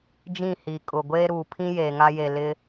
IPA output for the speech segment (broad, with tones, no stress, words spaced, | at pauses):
d͡ʒĩ˦˨hiː˨kʼʊ˨ɡʷeː˦ ɾu˨pʰĩ˦ jeː˨ŋa˦je˨ lɪ˦